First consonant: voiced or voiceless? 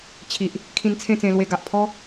voiceless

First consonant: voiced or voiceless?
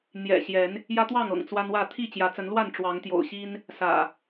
voiced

